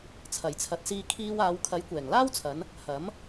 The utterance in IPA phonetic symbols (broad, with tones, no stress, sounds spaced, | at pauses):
t͡sʰ ɐ˨˩ j t͡sʰ ɐ˨˥ t̚ s iː˧ kʰ iː˧ w aː˨˧ w kʰ ɐ˨˥ j kʷ ɛː˨˩ ŋ l aː˥ w t͡sʰ ɐ˨˧ n | h ɐ˨˥ m